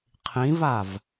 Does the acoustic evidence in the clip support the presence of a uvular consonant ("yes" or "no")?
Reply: yes